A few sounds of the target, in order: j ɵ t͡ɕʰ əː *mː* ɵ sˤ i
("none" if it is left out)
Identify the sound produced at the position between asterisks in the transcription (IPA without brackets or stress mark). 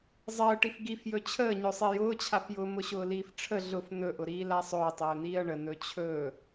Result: ɲ